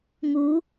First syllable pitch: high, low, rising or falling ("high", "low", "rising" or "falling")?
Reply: rising